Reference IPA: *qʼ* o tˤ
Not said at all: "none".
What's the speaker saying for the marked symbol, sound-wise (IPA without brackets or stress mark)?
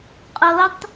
qʼ